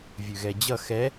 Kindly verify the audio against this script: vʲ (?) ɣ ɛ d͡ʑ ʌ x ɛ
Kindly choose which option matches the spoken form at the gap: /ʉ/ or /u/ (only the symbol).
ʉ